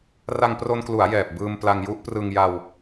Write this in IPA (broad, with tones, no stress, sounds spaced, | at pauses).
r a˧ ŋ p r o˧ n k l u˩˦ a̯ j ɛː˨˩ p̚ b ɯː˧ m p l a˧ ŋ j u˦˥ ʔ p r ɯ˧ ŋ j a˧ w